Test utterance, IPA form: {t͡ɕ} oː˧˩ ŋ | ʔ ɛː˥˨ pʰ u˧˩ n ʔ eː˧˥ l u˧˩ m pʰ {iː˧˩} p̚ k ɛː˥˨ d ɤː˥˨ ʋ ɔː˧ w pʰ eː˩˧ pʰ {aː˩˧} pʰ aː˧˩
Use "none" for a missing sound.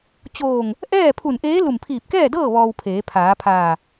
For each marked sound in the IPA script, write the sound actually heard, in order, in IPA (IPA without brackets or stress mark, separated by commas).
t͡ɕ, iː˧˩, aː˩˧